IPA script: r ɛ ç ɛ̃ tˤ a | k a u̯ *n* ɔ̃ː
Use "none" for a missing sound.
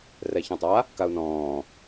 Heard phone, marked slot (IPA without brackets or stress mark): n